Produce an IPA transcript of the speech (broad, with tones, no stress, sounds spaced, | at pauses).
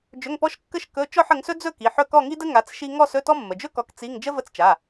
d͡ʒ ɵ˧˥˧ ŋ p ɔ˥ ʃ kː ə˥˧ ʃ k ɵ˧˥˧ t͡ʃ ɔ˥˧ ħ ə˨˦ ŋ s ɵ˥ d͡z ɵ˥˧ k i˩˧˩ ħ ɵ˥˧ k ɔ˥˧ ŋ i˥ d ə˥ ŋ a˨˦ t͡s ʃ i˥ ŋ ɔ˥˧ s ɵ˧˥˧ t ɔ˥ mː ə˩˧˩ d͡ʒ ɵ˥ k ɔ˨˦ k t͡s i˧˥˧ ŋ d͡ʒ ə˥ v ə˧˥˧ t͡s t͡ʃ a˩˧˩